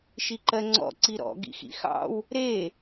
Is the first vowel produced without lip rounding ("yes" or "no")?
yes